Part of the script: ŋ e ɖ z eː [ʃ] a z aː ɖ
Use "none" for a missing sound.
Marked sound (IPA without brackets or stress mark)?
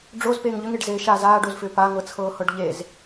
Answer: ʃ